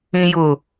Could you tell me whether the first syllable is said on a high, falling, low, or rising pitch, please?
low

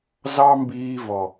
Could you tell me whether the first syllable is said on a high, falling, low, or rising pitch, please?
high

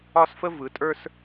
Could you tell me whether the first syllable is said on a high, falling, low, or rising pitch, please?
high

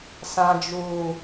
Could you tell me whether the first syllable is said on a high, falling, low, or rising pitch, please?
low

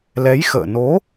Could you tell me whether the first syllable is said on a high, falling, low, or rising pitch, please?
rising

